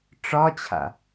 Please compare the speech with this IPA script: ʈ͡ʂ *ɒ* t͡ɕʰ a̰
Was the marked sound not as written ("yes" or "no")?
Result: no